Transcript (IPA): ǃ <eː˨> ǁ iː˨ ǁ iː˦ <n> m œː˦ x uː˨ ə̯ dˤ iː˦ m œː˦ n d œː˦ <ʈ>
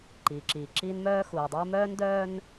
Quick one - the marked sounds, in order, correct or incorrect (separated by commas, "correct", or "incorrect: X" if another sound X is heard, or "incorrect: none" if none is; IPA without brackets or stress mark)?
incorrect: iː˨, correct, incorrect: n